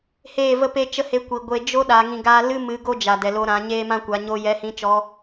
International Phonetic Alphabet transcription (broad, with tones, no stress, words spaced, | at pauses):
heː˦˨və˦pe˦t͡ʃə˦ he˧kʷi˨ɡʷe˧ d͡ʒo˦ ɗa˨˦ŋĩ˧ɡa˦ lɨ˦mɨ˨˦ ɡo˦d͡ʒa˨ dɛ˨lo˧ ɾã˨˦ɲeː˦mã˦kʷa˨˦ ɲo˦ jɛ˧hĩ˧t͡ʃɔ˧